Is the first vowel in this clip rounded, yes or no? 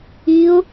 no